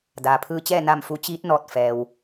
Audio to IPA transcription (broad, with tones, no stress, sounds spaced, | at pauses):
d aː˩ pʰ ɯː˧ t͡ɕ ɛː˥˨ n a˥˨ m f u˧˥ t͡ɕ iː˧˥ t̚ n ɔː˧˩ t̚ f ɛː˩ w